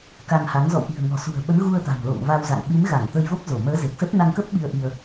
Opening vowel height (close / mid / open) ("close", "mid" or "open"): open